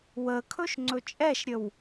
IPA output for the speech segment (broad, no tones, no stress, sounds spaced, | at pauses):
w ə kʰ ɵ ʃ ŋ͡ǀ ɵ t͡ʃʼ ɛ ʃ ɾʲ ə w